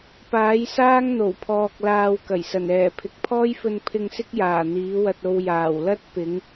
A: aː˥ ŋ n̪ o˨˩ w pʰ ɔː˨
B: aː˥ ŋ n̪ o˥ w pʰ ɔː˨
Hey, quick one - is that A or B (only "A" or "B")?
A